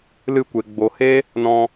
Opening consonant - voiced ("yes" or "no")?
yes